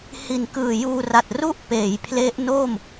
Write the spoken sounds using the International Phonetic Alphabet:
h i˨˩ n k ɯː˨˩ j uː˧ r a˨˩ t̚ r u˥˩ ʔ p eː˩˦ j pʰ l e˦˥ ʔ n o˥˩ m

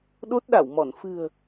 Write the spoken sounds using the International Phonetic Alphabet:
ɗ o˦˥ t̚ ɗ a˧˩ w m ɔ˧˩ n f ɨ̤˨˩ ə̯

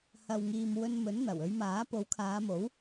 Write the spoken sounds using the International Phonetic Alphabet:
h ɐ˨ w ŋ iː˨ m w ɵ˧ n m ɵ˨˥ n n̪ ɐ˨˩ w ɵ˨˧ ɥ m aː˨˥ p o˨˥ w kʰ aː˨˧ m o˨˥ w

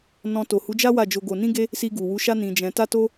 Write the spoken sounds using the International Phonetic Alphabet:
n ɔ̃˧ t o˨ h u˨˦ d͡ʒ a˦ w a˦˨ d͡ʒ o˧ ɡ o˧ n ĩ˦ ɡ e˦ | s i˧ ɡ u˨ w u˨˦ ʃ a˦ n ĩ˧ d͡ʒ ɛ̃˧ t a˦ t o˦

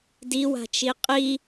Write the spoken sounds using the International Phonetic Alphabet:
d i w a̤ t͡ʃ i qʼ i

